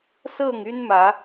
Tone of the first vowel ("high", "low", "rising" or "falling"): falling